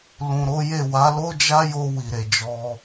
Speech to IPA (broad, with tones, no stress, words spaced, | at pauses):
lũ˨ɾo˨˦je˦˨ wa˨˦lo˦d͡ʒa˦jo˧ wi˨ɾe˨d͡ʒɔ˧